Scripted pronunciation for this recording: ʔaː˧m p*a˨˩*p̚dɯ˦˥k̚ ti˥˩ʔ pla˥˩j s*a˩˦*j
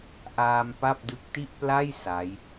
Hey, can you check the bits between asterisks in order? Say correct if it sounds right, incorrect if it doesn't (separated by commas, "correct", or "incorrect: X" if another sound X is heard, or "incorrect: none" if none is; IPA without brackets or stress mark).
incorrect: a˥˩, incorrect: a˦˥